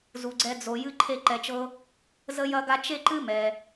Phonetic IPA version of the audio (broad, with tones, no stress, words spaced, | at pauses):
zu˩ɡ͡ǀɛ˨ d͡zo˩ jɨ˨ǃʰe˨ǃɛ˩t͡ʃɤ˨ | zə˦jɐ˦ɡa˦ t͡ʃe˦ǃɨ˦ mɛ˩